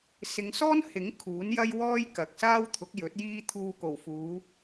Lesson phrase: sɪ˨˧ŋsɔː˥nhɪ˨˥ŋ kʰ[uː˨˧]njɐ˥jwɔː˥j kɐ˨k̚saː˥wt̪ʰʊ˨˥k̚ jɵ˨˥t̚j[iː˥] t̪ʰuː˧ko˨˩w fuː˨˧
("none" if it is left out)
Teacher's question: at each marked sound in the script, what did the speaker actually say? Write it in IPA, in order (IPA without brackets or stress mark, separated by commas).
uː˨˥, iː˥